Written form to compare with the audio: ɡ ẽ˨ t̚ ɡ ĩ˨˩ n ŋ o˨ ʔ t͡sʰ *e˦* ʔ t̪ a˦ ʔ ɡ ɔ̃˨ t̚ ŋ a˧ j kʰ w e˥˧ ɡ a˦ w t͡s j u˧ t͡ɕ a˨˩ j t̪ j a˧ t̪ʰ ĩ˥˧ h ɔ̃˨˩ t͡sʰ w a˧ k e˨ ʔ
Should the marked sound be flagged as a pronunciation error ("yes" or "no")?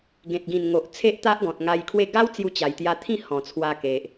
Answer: no